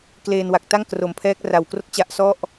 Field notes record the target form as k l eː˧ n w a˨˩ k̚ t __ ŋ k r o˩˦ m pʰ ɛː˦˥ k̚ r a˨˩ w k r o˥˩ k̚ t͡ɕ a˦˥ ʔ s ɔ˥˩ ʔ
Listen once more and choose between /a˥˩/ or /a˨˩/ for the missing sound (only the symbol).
a˥˩